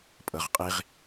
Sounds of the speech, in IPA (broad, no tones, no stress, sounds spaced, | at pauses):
pʼ ɤ ʁ qʼ i ʁ